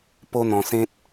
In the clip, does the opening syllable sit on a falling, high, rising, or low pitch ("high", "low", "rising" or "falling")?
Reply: high